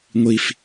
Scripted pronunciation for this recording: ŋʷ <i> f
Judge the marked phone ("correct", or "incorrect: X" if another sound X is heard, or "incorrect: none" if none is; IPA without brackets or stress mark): correct